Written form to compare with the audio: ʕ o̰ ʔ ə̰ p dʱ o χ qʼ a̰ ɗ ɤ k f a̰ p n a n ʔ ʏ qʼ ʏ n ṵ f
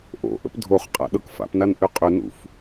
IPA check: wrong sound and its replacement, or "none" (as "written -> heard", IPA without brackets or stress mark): ʕ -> ʔ